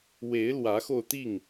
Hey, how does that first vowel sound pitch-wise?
rising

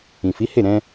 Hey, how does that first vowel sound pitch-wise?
low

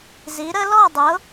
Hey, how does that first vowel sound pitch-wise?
rising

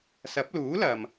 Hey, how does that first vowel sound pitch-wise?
rising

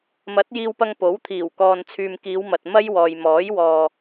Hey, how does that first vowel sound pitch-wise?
rising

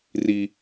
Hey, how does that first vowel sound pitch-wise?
high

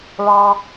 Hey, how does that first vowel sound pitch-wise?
low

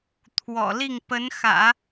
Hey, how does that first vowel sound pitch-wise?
low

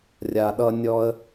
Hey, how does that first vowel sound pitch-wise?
low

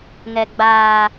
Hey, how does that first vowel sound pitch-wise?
low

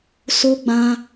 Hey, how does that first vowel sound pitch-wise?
high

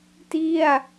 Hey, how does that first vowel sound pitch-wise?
falling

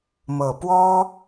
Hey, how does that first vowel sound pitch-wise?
low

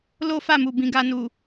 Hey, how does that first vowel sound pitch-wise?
high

